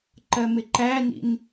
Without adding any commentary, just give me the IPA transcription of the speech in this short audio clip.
ǃɜmɪǃænḭn

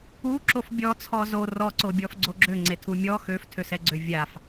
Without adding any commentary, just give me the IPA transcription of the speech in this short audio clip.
uǁof bʲɔt͡sʰɔ zo rɔǀobʲɔf ɡ͡ǀoɡ͡ǁø ŋ͡ǀetʰumʲɔ xøftʰøsɛɡ͡ǀø vʲaf

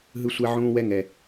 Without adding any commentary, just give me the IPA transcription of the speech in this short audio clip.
ɦɯ˦sʷɛ˦ʕũː˦ wɛ˦ŋɛ˨

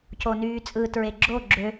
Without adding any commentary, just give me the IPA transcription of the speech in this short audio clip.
conyːt͡sʼɯ tɹeɡ͡ǁo ɡ͡ǁø

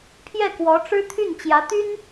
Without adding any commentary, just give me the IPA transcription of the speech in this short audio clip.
pʰjɛ˥˩kwɔ˧˥ ʈ͡ʂɻ̩˥t̪ʰy˥˩n t͡ɕjä˧˥t̪y˥n

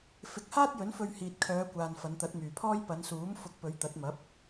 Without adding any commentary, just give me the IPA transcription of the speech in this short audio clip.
fɪ˨˥k̚haː˥t̚jɵ˨˥nfɵ˧ɥ hiː˨t̚kʰœː˨˧kʷaː˨n fɐ˨˧nt̪ɐ˨˥t̚myː˨pʰɔː˥j pɐ˨˧nsuː˨˥m fʊ˨˥k̚pɵ˨˧ɥ t̪ɐ˨˥t̚mɐ˨˥p̚

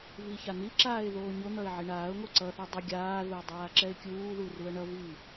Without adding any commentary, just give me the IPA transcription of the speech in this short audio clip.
viçan̪iǁaːɪ̯ ðoːɲon̪ʌɪ̯ ʕiɳaːʊ̯ŋo ǀʌθɛ dˤʌ ɡʲaːðuə̯ dˤaːǁɛɪ̯kʲuːðu ruə̯ɳʌvi

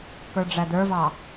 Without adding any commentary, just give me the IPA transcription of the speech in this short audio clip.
kə˞ɖ͡ʐædə˞vɑ

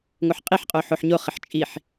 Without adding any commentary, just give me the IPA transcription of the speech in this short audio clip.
ŋoħqʼiħqʼoħoħ ɲoχɪħ t͡ʃʼiħ

